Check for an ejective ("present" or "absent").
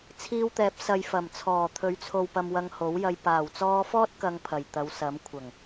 absent